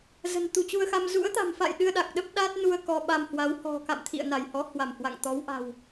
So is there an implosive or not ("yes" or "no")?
yes